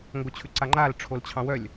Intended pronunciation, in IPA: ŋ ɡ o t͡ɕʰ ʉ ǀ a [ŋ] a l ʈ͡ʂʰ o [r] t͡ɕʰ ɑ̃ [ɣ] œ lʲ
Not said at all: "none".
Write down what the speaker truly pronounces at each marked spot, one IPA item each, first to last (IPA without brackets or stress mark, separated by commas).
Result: ŋ͡ǃ, l, w